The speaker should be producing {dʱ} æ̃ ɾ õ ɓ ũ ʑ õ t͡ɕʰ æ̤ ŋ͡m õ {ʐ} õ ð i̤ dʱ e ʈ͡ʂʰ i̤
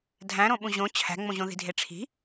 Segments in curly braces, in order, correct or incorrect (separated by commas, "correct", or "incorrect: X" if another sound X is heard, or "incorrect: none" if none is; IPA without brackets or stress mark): correct, incorrect: ʑ